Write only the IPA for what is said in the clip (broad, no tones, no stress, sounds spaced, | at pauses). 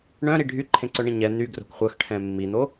ɳ œ̃ ɾ i ɖʱ y ǃʰ ẽ ǀ œ ɳ ĩ ɲ ɛ n̪ y ɡ r o̤ k χʷ œ x ʈʰ ɛ̃ mː i n̪ o